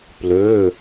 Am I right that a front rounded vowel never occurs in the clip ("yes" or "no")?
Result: no